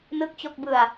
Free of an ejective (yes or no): yes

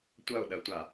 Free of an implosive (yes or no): no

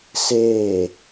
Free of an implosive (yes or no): yes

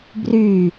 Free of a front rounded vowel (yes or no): no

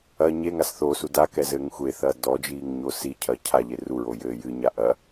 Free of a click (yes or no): yes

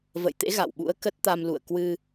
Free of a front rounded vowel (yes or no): yes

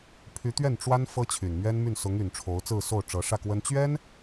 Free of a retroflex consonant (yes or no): no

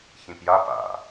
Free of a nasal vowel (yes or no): no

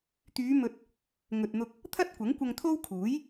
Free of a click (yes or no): yes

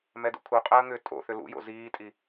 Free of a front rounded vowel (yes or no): no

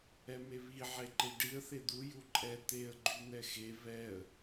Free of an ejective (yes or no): no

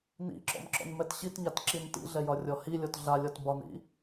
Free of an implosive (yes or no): yes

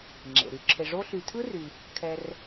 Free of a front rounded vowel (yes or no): no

